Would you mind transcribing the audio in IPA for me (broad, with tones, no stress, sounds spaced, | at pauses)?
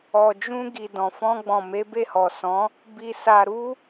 ɔ˨ d͡ʒ ũ˧ ɡ i˨ d ɔ̃˨ f ɔ̃˧ ɡ͡b ɔ̃˨ m e˨˦ b e˦˨ h ɔ˨ s ɔ̃˨˦ | b i˧ s a˧ ɾ u˦